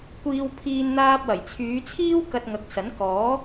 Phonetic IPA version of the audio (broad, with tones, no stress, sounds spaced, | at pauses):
kʷ iː˧ w pʰ iː˧ n n̪ aː˧ p̚ w ɐ˨˩ j t͡sʰ yː˨˧ t͡sʰ iː˥ w k ɐ˧ t̚ ŋ ɐ˨˥ k̚ s ɐ˨˥ n k ɔː˨˥